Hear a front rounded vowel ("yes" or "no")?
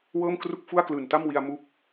no